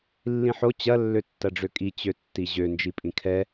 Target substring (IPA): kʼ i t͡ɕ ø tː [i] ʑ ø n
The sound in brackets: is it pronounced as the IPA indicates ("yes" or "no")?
yes